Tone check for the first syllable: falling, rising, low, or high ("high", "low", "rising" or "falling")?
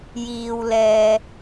low